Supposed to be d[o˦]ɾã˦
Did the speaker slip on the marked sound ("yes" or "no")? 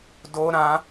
no